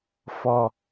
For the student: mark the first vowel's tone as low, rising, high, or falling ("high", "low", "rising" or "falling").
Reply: low